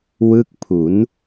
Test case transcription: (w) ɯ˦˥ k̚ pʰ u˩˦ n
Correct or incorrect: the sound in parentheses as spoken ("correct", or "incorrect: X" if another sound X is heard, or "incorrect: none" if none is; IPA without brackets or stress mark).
correct